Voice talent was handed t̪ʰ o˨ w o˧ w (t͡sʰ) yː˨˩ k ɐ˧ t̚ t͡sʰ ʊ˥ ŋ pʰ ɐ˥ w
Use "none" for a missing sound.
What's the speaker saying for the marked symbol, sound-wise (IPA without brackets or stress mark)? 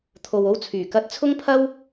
t͡sʰ